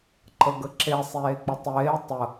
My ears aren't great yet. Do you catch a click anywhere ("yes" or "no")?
yes